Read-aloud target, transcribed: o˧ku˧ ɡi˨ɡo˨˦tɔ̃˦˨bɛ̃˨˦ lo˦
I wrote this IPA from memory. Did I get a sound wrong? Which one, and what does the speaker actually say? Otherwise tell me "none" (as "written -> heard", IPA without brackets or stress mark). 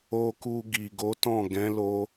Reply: b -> ɡ